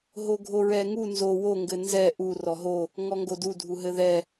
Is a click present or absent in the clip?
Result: absent